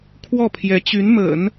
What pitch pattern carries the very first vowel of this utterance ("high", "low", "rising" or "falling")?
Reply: falling